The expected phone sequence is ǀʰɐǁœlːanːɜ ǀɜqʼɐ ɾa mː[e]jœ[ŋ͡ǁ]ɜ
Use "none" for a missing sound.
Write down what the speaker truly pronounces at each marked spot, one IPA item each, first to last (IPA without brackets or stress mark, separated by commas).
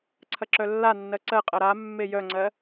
e, ŋ͡ǀ